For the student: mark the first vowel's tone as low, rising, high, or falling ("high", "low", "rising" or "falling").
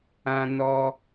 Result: high